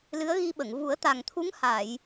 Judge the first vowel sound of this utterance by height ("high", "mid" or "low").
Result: high